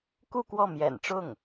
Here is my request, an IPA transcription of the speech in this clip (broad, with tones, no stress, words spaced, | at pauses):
ku˥˧kwɔ˥˩ mjɛ̰˨˩nʈ͡ʂʊ˥˩ŋ